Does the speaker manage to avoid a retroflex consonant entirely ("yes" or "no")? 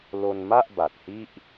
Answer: yes